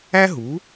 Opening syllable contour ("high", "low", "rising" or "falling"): high